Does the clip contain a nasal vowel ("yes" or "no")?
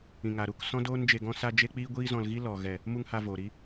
yes